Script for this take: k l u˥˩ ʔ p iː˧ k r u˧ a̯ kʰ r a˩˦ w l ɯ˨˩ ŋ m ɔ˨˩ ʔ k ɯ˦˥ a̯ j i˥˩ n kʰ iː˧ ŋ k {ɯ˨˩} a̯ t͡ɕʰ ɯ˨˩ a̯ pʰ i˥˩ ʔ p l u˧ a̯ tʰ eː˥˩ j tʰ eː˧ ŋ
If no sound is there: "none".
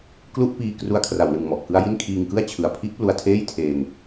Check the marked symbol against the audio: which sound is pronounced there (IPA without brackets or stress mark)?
ɯ˥˩